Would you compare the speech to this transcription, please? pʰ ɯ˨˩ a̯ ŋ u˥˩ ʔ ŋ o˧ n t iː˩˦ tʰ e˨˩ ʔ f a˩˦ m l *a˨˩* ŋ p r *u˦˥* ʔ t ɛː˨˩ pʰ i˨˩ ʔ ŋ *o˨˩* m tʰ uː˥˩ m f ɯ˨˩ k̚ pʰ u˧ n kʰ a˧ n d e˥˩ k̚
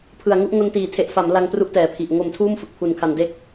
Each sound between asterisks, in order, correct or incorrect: incorrect, correct, correct

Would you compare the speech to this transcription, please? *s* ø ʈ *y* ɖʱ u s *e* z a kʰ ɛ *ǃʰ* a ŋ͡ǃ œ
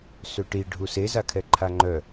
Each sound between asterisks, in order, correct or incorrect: correct, incorrect, correct, correct

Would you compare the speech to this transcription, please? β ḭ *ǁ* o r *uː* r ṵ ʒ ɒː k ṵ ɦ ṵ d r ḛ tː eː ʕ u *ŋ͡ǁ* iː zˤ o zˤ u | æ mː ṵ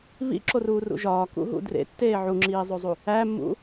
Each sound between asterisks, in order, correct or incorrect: correct, correct, correct

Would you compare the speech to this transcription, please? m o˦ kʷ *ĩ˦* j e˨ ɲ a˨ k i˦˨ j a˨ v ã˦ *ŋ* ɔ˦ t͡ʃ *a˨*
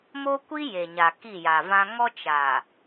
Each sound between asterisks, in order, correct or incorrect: incorrect, correct, correct

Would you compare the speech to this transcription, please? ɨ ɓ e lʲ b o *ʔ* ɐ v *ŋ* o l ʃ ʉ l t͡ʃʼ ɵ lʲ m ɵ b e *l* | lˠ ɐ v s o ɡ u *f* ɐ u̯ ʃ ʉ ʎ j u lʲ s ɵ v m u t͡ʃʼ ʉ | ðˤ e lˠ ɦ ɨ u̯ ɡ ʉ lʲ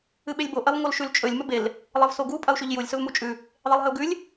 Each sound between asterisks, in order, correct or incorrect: correct, correct, correct, incorrect

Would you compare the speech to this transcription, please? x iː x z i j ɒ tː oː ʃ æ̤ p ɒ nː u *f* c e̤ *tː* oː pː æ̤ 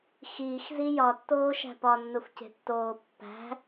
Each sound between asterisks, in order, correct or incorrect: correct, correct

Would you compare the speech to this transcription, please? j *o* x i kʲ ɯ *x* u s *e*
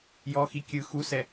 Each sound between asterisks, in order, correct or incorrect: incorrect, correct, incorrect

